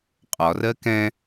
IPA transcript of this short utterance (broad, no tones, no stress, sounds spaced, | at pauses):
qʼ ɒ r ɜ k ɛ̃